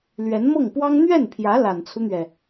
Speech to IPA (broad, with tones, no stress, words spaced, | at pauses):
lɥɛ˧˥nmɤ˥˩ŋpwɑ˥ŋ n̪ɥɛ˥˩npʰjä˧˥ la˨˩nt͡sʰu˦n̪ɥɛ˩